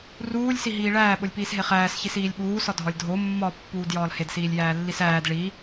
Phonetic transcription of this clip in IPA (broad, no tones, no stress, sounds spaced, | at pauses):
r uː lʲ s i ɦ iː ɭ æː ɓ o lʲ p iː s ɦ e χ æː s ç i s iː lʲ ɓ uː s ɒ dʱ ɒ lʲ dʱ o mː ɒ pː uː d j ɒː l h e d s iː lʲ j æː lː i s æː d ɭ i